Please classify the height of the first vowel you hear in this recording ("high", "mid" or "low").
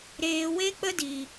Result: mid